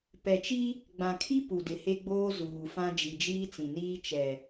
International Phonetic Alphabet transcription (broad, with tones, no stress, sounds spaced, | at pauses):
p ɛ˨ t͡ʃ i˦ | ɡ͡b ã˨ kʰ i˦ p u˨ d ɪ˨ h e˦ ɡ͡b oː˦ z uː˨ f ã˦ d͡ʒ i˨ d͡ʒ iː˦ t͡s ĩ˨ n iː˦ t͡ʃ ɛ˨